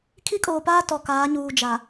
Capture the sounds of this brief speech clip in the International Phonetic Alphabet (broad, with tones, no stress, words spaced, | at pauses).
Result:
kʰi˦kʼoː˨paː˦ tɔ˨kaː˨˦ɲuː˨ d͡ʒa˨